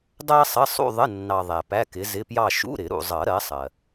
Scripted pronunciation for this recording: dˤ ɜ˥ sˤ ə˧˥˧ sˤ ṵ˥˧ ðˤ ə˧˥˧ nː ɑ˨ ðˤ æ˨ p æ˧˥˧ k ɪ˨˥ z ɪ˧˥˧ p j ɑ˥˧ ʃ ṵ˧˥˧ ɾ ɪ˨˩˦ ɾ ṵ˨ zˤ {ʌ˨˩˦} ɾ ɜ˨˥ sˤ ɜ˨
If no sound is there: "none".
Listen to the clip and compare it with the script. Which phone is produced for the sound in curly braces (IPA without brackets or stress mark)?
ʌ˨˩˦